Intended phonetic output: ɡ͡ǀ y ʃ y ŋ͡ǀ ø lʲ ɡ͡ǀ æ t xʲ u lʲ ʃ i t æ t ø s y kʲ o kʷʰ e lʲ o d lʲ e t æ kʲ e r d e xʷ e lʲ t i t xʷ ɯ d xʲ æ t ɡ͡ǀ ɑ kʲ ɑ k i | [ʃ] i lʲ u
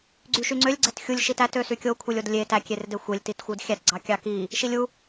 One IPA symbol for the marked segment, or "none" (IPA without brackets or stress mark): ʃ